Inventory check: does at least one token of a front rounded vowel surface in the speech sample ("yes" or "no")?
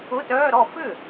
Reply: yes